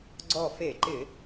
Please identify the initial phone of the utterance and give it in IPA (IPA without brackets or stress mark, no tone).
ɡ͡ǀ